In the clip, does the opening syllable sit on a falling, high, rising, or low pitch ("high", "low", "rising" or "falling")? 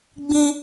high